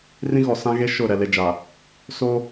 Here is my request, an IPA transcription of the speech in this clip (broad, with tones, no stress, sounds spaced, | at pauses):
r ĩ˦ ɣ ɔ˨ s ã˦ ɣ e˦ ʃ ʊ˦˨ ɾ ɛ˨ l e˨ d͡ʒ aː˨ | s oː˦